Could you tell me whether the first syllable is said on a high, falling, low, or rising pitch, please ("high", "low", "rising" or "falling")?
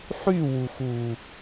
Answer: falling